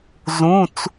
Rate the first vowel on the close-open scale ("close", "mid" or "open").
close